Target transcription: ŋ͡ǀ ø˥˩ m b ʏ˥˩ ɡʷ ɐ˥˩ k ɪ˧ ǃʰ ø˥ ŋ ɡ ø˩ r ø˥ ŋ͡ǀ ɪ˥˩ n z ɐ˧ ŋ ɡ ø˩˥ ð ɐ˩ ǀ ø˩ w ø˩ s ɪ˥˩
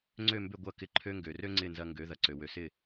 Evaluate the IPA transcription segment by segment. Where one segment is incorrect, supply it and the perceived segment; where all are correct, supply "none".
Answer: none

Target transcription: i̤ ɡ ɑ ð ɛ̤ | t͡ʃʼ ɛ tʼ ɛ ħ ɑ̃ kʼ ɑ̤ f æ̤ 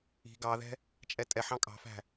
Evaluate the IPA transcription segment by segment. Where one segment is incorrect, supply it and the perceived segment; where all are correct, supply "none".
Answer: none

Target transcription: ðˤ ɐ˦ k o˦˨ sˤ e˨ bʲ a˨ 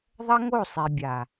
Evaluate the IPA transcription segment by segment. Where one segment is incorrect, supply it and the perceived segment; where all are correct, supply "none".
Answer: k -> ŋ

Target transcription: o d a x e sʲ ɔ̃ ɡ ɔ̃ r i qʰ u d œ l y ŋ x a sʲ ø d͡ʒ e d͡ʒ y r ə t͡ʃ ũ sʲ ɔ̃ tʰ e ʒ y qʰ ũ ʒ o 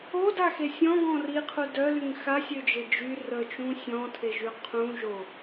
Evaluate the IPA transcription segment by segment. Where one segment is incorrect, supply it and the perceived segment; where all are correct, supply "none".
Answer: none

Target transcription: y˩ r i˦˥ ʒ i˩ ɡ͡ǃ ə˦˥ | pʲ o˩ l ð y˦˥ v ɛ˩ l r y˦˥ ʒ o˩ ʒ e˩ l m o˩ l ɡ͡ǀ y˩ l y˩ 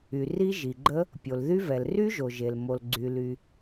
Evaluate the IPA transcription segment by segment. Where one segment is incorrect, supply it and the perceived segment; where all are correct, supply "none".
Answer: none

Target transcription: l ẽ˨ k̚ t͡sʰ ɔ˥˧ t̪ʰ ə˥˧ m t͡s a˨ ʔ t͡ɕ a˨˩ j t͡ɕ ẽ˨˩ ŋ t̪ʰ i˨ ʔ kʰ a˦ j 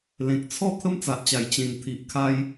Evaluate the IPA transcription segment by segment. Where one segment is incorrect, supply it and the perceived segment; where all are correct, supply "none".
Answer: none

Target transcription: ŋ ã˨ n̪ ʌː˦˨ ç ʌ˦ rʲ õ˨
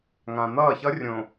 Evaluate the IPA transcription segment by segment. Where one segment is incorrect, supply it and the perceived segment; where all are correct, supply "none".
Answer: none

